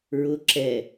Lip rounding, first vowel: rounded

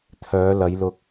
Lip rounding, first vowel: rounded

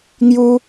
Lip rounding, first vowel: rounded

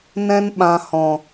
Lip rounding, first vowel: unrounded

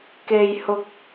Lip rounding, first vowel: unrounded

